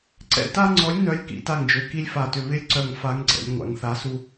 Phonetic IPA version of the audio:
ǀɛ̰˦ ta˦ŋ͡ǀɔ˨˥lʲ nœ˨˥lʲ kḭ˩˧ta˧˩ŋd͡ʒø˩˧˩ ki˦lʲfa˧˩tʏ˧˩ βɪ˦lʲǀœ˧˩ŋ fa˨˥ŋɡ͡ǀɛ̰˩˧lʲ ŋʷa̰˩˧ŋθa˨˥ su˦

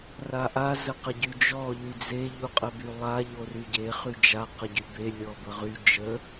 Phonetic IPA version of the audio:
raʔa zəqəɟyd͡ʒɔ ʎyd͡ze ʎuqʼəbylˠa ʎoryɟe χyd͡ʒa qəɟybe lʲɔbəʁy d͡ʒə

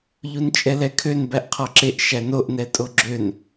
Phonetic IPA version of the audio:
ʎunt͡ʃʼɛlɛkʰøn bæʔqʰɔǁeʔ ʃænoʔnɛtʼo ɡ͡ǁøn

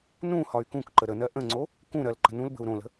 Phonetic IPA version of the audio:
nũ hɒy̯kũkǃə ɾənɜ ʔə̃ŋ͡ǀo | kũɾɜl ǃə̤nũlbə̤u̯ ɾõlə̤

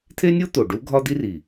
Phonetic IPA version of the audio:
t̪ʰe˥nʲo˥t̪o˨˩ ɖu˥ ɡʱɒ˥d̪i˥ri˨˩

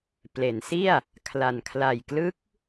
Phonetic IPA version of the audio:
ple˩˦nsi˥˩a̯ | kʰla˨˩n kʰla˨˩jklɯ˦˥k̚

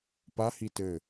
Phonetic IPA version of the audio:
pahi tɘ

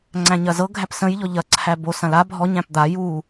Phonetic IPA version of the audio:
ŋ͡ǀæ̃ɲɐzɤ ɡʱæpsə̃j ʎɔʎɐ ǀʰæbo sɐ̃la bʱɔ ɲæ̃pd̪a ju

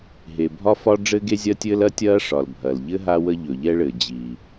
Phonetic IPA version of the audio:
ɦe˩ bʱɒ˥fɒ˥ ɖ͡ʐɘː˥ɡe˥zʲɐː˥tʲɘː˥l ɐ˥tʲɐː˥ʂɒ˩l bʱɐ˩l ʎɘ˥ ɦa˥wə˥ ʎɵ˩ʎɛ˥ɭɘː˩ d͡ʑi˩

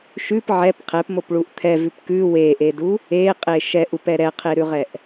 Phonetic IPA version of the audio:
ʃʉp ʕɛp qʰɛpmopɭuʔ t̪ʰɛvʉp kʉ weʔedu | eqʼe ʃɛʔupɛ ɾɛqʰeɾʉʁɛʔ

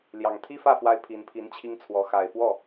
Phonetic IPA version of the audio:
ljɑ˨˩ŋ t̪ʰi˥fä˥˩fwa˧˥ɪ̯ pʰi˧˥npʰi˧˥nt͡ɕʰi˥ŋt͡sʰwɔ˧˥ xa˨˩ɪ̯fwɔ˥˩

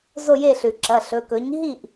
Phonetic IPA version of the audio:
zo˦˨je˦˨ɬʉ˩ ǁɐ˩˧˩ɬɵ˩˧˩kɵ˩˥ɲ ɦi˦˨ʔ

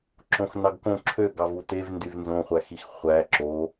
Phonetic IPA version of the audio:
ǁõxnɑɡkõ ǁʰø ɡɑvutev ndyvnzõχʷæ xixχʷæ ǁo

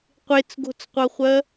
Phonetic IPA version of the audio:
qʷet͡sɡo̤t͡sqʷɤχʷɜ

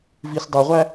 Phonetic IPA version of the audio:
visdˤuʁʷæ

